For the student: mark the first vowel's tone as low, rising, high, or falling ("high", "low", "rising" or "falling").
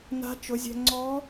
rising